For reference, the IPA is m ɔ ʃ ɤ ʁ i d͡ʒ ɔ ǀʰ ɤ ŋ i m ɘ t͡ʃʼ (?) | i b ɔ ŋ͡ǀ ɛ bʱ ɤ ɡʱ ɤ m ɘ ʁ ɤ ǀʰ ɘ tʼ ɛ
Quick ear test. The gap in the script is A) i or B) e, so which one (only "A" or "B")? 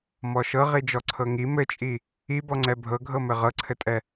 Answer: A